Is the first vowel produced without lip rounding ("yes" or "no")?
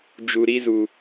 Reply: no